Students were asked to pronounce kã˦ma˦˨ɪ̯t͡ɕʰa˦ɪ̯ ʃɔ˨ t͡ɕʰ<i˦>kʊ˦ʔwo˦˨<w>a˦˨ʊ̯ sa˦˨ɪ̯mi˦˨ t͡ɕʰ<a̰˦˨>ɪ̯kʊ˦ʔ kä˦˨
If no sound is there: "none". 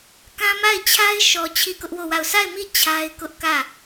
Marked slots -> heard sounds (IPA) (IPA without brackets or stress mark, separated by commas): i˦˨, w, a˦